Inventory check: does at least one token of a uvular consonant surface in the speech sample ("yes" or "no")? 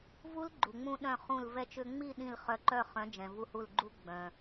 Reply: yes